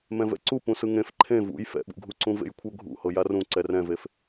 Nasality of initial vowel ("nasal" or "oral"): nasal